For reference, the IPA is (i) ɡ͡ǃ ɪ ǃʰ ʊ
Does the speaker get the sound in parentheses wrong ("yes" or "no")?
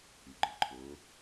yes